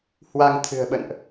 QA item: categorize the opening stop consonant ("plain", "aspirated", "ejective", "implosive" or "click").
aspirated